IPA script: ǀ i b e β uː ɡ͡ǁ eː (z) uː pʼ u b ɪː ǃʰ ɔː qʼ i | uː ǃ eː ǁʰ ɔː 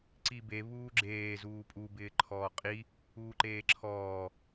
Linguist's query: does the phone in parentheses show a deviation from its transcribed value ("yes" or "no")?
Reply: no